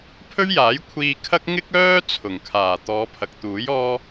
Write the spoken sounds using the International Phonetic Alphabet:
pʰ ɵ˥ ɥ j aː˨˥ j kʷʰ iː˧ kʰ ɐ˥ k̚ ŋ ɪ˥ k̚ œː˥ t͡sʰ ʊ˨˩ ŋ kʰ aː˨˩ t̪ ɔː˨˧ pʰ ɐ˨ k̚ t̪ uː˨˥ j ɔː˥

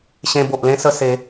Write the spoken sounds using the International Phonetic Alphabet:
ɕ ẽ˧ b o˨ ʔ l ẽ˦ s ə˧ s e˨˦

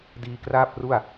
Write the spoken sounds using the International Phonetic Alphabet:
d iː˧ k r aː˥˩ p̚ r u˥˩ a̯

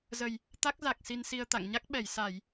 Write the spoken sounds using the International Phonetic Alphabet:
z ə˨˩ j | t̪ a˦˥ k̚ z a˨˩ k̚ s i˧ n s i˧ ə̯ t̪ a̰˧˨ ŋ ɲ a˦˥ k̚ ɓ ɛ˧˩ j s a˧˩˨ j

